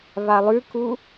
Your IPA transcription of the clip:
β a lˠ ʉ k u

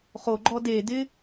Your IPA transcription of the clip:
χ o ɡ͡ǃ ɔ d e d ɪ

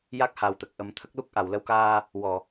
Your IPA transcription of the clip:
j a˦˥ k̚ h a˨˩ w t̪ ə˨˩ k̚ ʔ ə˨˩˦ m t̪ʰ ə˦˥ k̚ l u˦˥ k̚ ʔ a˨˩˨ w l ə˧ w k aː˧ | w ɔ˨˩˨

